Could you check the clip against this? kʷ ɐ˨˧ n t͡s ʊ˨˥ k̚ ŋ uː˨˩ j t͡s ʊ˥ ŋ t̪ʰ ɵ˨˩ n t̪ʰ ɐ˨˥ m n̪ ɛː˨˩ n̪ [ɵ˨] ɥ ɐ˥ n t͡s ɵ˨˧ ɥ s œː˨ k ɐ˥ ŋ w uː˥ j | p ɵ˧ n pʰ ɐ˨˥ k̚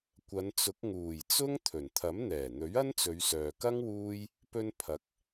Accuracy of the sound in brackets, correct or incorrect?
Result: incorrect